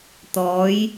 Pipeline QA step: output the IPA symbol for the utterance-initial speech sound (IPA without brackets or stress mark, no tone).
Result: t̪